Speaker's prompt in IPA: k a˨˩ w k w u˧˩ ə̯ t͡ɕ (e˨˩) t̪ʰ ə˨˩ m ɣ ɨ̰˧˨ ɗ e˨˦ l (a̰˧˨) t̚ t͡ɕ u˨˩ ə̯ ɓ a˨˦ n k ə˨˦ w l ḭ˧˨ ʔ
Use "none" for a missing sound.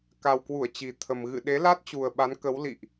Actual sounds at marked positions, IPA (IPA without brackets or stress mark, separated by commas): i˨˩, a˦˥